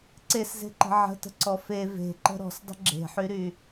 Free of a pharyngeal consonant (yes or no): no